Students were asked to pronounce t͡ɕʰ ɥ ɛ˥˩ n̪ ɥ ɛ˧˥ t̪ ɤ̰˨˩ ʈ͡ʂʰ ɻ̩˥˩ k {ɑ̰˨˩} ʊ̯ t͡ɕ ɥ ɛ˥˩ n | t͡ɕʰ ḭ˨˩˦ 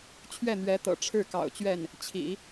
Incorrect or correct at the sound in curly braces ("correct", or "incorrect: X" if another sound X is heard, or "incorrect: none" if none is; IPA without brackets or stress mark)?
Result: correct